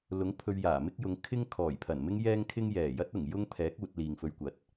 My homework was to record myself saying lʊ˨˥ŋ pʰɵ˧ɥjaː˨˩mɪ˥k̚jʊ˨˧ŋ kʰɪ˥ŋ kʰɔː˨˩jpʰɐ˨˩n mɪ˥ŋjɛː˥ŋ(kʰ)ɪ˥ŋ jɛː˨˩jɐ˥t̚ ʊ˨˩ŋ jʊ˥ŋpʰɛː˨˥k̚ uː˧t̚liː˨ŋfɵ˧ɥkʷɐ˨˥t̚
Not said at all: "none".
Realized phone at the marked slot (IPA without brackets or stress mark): kʰ